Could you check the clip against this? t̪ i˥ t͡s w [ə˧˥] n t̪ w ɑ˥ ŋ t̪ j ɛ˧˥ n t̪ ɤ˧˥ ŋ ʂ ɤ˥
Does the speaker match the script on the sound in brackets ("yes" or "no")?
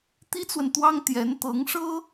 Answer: no